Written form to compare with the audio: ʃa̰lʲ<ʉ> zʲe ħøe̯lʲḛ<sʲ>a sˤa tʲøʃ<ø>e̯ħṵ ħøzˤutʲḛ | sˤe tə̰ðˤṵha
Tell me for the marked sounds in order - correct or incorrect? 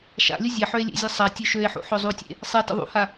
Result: incorrect, incorrect, correct

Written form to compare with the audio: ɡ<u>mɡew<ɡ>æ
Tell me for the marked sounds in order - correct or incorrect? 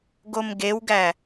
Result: incorrect, correct

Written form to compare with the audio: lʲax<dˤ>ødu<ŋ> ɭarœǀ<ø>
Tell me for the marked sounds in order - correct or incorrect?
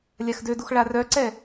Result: incorrect, incorrect, incorrect

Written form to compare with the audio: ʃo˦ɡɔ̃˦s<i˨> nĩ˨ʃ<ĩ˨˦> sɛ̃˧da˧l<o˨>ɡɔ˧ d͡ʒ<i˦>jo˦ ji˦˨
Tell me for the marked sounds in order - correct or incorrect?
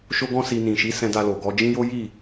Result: incorrect, incorrect, correct, incorrect

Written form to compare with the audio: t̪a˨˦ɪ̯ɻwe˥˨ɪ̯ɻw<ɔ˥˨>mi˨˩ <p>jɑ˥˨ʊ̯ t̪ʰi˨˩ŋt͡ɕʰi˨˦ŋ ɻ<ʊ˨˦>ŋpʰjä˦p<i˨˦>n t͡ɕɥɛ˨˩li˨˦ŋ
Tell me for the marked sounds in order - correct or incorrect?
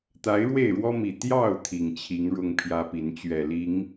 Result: incorrect, incorrect, incorrect, correct

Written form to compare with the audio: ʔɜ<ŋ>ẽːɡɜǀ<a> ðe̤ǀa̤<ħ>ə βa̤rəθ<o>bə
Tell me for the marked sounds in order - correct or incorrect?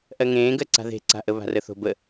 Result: correct, incorrect, incorrect, incorrect

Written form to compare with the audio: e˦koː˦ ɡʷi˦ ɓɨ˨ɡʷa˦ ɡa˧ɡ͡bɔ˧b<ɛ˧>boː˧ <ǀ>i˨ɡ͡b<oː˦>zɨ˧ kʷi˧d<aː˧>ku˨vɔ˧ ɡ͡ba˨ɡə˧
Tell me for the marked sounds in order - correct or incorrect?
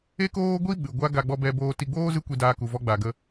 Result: correct, incorrect, correct, correct

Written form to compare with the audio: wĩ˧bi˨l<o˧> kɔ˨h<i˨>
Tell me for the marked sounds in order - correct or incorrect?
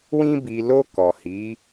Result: correct, incorrect

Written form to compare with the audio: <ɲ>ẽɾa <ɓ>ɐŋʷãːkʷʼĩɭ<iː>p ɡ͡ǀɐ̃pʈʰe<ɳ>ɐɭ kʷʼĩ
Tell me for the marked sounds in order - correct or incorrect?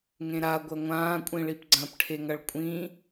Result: incorrect, incorrect, incorrect, incorrect

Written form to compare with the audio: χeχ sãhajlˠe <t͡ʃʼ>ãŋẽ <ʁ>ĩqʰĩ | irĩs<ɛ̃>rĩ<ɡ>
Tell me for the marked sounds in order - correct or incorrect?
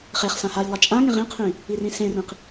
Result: correct, correct, incorrect, incorrect

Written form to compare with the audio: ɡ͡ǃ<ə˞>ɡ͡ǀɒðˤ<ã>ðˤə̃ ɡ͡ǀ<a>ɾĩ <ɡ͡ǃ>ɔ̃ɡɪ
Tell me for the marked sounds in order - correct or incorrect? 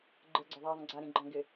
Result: correct, incorrect, correct, correct

